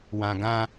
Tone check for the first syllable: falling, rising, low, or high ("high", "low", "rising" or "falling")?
low